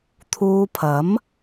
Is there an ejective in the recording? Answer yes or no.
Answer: no